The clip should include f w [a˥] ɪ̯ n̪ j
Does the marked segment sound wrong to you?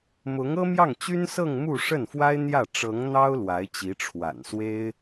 no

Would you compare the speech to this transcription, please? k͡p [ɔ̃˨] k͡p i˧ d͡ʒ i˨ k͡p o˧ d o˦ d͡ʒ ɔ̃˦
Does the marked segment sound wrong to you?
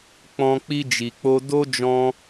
yes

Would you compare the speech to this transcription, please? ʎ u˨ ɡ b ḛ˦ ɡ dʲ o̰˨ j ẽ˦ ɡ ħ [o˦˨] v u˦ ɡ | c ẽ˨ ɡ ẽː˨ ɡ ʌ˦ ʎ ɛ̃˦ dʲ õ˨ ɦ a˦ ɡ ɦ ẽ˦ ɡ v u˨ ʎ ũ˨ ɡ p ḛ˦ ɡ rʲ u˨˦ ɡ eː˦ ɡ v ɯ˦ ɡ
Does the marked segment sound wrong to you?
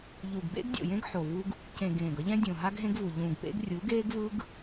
yes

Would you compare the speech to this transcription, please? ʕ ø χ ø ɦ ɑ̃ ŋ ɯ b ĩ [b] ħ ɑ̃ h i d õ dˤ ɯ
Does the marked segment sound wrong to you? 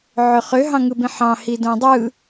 yes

